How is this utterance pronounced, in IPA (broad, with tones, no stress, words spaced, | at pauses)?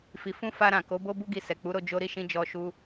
fi˨fũ˧ fa˧ɾã˨ ko˨˦bo˦ bu˦ɡi˧ sɛ˨k͡pu˨˦ɾo˧ d͡ʒo˦ ɾi˦˨ʃĩ˧ d͡ʒɔ˧ʃu˦